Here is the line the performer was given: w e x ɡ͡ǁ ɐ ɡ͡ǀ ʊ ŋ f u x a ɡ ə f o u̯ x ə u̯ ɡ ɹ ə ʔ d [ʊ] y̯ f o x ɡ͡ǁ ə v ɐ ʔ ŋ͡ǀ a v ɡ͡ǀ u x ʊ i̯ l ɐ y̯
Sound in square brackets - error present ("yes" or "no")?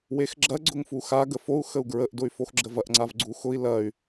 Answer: no